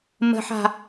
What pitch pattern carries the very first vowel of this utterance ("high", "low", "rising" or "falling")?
low